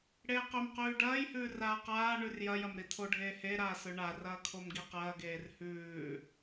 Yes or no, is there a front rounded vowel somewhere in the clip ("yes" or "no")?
no